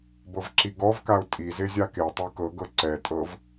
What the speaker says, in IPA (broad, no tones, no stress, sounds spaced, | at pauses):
b ɤ v ǁ i ɡ ɔ v k a ʊ̯ tʼ i z e zʲ a k e tˤ ɯ k ɤ ɡ ɤ ǀ ɛ tʼ ɤ v